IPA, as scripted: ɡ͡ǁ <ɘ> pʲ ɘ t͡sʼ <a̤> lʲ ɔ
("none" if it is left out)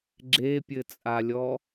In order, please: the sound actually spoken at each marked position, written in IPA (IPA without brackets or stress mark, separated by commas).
e, a